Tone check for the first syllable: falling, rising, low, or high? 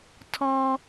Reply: high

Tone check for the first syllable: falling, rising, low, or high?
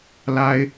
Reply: high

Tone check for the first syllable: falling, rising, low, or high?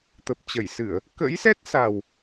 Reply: low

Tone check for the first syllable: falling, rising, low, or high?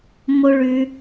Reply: high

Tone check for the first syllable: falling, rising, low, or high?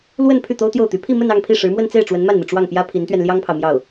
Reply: falling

